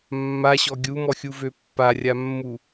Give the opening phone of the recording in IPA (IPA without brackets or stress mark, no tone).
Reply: mː